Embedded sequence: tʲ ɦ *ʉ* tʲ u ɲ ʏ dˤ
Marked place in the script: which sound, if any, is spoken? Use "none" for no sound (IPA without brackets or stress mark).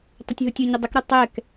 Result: u